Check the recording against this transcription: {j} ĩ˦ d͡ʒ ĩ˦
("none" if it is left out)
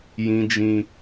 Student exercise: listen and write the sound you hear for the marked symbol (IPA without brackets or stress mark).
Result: j